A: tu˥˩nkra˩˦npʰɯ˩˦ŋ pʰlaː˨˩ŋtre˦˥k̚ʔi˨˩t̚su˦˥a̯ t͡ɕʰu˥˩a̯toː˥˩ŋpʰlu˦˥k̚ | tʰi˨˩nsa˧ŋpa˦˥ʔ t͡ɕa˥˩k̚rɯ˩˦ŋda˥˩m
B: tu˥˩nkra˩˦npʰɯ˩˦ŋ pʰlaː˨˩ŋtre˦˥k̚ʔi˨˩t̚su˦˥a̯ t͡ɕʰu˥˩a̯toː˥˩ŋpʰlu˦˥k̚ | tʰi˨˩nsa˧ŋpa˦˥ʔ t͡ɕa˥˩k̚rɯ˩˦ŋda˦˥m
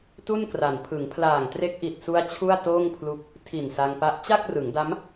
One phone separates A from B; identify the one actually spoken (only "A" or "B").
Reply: B